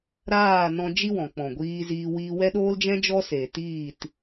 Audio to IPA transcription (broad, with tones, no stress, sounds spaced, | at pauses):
ɾ aː˦˨ n ɔ̃˧ d͡ʒ i˧ w ɔ̃˨ k͡p ɔ̃˨ ɡʷ iː˧ z iː˧ w i˧ w ɛ˦ ɗ oː˦ l d͡ʒ ɛ̃˦ d͡ʒ ɔ˦ s e˨ t iː˦˨ t